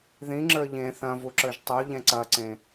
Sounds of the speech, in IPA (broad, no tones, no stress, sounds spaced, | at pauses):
ð ĩ ŋ͡ǁ ə˞ ʎ ẽ θ ɐ̃ v u ǁ ə˞ ʒ tˤ u ʎ ɛ̃ ǀ ɐ ǀ ẽ